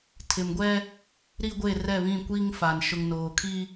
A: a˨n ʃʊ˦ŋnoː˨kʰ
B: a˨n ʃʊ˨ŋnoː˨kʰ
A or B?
B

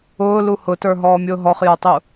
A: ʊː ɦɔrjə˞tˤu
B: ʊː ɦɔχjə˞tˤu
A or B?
B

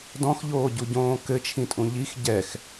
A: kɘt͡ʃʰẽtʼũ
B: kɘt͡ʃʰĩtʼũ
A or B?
B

